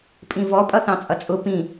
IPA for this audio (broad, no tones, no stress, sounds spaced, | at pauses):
pʼ ĩ v ɔ pʼ ʌ θ ɑ̃ t͡sʼ ʌ t͡sʼ ʊ p ĩ